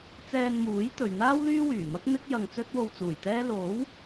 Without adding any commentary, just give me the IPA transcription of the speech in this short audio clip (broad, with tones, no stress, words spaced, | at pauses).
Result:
t͡sɛː˧nmuː˨˥jt̪ɵ˨ɥn̪aː˥w lyː˥wyː˨˩mɐ˥k̚ n̪ɪ˥k̚ jɐ˧ŋ t͡sɵ˥t̚wo˧wt͡suː˨˩jt̪ɛː˥ lo˨˥w